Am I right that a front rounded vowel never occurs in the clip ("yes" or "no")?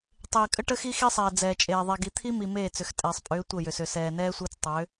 no